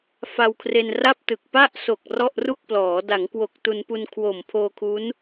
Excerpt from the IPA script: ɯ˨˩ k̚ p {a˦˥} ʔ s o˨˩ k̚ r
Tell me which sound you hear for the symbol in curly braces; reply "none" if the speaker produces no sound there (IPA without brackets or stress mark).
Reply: a˥˩